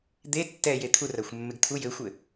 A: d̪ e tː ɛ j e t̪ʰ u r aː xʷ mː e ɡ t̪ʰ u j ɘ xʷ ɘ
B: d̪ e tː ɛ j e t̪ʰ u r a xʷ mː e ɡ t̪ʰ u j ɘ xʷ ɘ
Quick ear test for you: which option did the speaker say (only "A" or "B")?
B